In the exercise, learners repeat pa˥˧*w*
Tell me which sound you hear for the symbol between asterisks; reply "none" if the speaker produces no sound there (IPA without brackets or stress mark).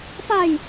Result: j